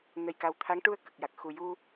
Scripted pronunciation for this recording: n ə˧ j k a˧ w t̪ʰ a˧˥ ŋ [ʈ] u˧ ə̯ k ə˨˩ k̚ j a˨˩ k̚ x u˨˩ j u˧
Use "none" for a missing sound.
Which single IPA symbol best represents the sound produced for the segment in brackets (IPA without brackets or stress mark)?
ʈ